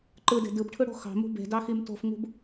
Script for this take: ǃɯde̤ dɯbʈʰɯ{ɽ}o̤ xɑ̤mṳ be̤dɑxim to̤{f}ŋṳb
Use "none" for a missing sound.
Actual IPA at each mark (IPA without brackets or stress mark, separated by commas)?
ɽ, f